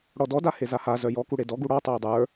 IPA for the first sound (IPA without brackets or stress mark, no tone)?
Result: ɽ